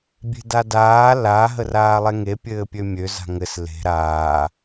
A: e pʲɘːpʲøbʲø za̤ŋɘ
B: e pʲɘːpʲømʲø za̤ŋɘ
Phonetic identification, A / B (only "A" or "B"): B